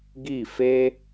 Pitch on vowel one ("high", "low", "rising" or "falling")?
falling